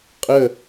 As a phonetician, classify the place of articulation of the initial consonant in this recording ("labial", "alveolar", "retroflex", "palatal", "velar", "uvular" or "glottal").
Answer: uvular